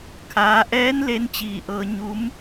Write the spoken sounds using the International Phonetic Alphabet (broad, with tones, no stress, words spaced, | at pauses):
kʰaː˩˧ʔɛː˧˥n le˧˥nt͡ɕiː˧˩ʔɤː˧ ɲu˧˥m